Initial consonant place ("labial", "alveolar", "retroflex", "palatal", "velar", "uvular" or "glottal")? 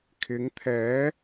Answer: velar